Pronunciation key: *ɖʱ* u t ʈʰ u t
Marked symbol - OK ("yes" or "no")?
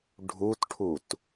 yes